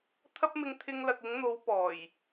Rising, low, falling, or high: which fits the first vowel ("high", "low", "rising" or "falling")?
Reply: high